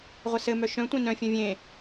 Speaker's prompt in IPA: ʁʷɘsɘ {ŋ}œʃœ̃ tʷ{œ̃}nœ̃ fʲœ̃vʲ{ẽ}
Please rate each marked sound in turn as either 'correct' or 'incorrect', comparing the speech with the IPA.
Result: incorrect, correct, correct

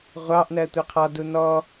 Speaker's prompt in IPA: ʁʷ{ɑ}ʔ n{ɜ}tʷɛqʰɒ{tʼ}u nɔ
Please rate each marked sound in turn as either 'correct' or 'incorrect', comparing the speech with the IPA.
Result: correct, correct, incorrect

